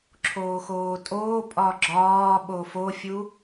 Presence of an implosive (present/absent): present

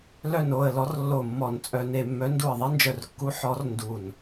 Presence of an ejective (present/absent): present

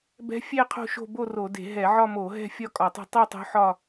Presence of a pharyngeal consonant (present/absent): present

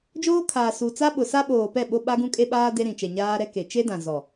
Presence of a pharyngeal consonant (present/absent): absent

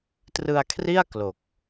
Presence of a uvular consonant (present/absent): absent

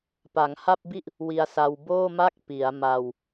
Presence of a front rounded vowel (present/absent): absent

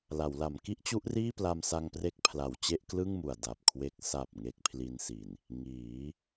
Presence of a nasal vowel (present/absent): absent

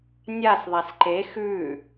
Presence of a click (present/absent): present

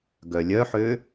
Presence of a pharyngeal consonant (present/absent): present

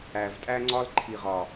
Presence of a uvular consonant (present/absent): present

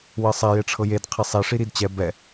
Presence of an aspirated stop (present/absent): present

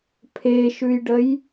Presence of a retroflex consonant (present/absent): present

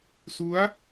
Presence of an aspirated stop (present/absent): absent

